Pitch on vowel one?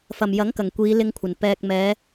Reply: low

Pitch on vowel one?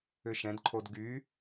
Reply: high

